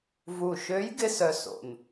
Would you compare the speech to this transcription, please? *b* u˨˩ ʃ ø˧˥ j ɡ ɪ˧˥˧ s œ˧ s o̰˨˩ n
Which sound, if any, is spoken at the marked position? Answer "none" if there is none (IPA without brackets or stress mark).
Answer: v